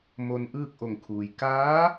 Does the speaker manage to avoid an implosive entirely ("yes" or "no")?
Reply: yes